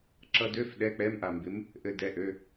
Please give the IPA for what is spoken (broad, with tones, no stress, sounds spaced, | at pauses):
ǁ ʌ˧ d ø˧˥˧ f ɗ ɛ˧˥˧ k͡p ɛ˧˥˧ m ʔ a˧ m b ɪ˧˥ m | ʔ ɘ˧ d ɛ˧˥˧ ʔ ø˧˥˧